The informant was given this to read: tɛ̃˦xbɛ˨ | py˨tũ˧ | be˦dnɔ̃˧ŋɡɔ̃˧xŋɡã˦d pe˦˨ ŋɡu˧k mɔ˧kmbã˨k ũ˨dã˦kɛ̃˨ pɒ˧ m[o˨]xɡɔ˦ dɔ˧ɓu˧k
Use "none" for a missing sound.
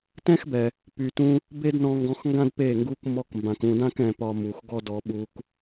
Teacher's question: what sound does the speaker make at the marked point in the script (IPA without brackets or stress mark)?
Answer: u˨